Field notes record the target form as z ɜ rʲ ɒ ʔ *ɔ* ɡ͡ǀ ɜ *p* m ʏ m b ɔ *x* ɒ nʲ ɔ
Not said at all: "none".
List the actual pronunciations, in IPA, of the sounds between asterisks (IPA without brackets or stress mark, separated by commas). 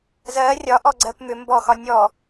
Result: ɔ, p, x